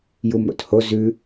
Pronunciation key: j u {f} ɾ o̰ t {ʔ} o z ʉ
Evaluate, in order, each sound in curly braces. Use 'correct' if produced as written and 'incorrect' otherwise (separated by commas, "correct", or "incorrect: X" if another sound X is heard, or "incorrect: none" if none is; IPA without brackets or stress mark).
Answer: incorrect: m, incorrect: h